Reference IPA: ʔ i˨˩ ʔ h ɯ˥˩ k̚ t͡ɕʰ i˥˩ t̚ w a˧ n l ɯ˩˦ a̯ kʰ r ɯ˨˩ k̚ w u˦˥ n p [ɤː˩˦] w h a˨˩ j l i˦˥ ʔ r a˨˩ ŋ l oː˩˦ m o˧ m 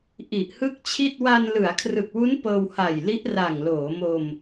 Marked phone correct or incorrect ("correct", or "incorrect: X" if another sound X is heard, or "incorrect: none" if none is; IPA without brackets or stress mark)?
incorrect: ɤː˧